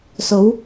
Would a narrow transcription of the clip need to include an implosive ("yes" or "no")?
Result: no